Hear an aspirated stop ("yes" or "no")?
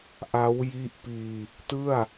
no